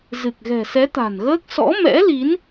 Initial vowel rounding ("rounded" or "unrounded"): unrounded